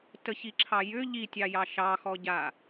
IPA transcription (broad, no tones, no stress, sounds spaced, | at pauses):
t ə ç i ǁʰ ɑ j ʏ ʎ i tʲ ɑ j ɑ ʃ ɑ x ɔ ɟ a